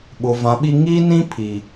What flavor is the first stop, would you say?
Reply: implosive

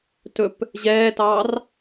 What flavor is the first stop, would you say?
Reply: plain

